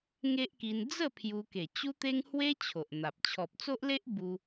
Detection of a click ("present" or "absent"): absent